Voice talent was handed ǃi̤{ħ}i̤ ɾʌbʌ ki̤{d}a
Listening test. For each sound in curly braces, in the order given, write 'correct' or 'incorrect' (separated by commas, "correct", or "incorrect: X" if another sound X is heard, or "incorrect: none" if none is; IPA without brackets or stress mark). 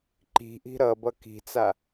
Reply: incorrect: ʔ, incorrect: t͡s